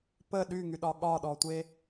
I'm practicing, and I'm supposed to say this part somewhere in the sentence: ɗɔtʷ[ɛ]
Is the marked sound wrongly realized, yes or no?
yes